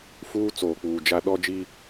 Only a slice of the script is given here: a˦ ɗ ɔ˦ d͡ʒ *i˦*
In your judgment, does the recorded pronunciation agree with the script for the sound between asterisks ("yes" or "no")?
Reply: yes